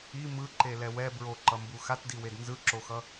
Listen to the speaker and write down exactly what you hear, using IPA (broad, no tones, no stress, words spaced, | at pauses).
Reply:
i mɯǃe lɛwɛ bɹoǃʌmbu xatdiwed nzɯǁoxʌ